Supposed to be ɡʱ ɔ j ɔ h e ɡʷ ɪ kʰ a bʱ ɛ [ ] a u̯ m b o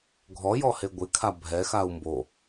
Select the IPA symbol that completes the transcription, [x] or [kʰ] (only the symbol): x